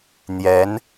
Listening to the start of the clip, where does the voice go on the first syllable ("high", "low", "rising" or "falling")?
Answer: rising